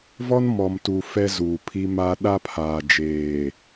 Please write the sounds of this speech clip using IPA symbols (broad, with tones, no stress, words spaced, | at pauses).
vɔ˦nmɔ˨mtu˨ fɛ˦zuː˨pʰi˦ma˦ ɗa˦pʰaː˨d͡ʒeː˨